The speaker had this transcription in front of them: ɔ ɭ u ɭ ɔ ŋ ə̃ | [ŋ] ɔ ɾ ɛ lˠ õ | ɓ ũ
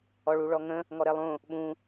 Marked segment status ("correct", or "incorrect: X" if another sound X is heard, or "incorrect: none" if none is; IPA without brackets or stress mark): correct